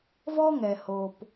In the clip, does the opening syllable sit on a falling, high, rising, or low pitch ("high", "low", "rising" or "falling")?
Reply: high